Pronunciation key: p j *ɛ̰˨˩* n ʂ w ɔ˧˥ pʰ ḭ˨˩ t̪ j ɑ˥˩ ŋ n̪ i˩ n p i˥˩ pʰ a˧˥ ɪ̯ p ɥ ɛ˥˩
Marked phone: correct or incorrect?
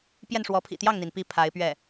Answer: incorrect